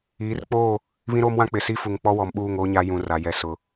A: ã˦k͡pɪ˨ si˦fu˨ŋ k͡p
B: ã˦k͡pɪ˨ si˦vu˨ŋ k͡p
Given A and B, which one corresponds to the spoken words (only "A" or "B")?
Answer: A